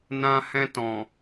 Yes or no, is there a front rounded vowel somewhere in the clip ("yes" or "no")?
no